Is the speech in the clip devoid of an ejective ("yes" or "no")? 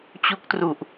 yes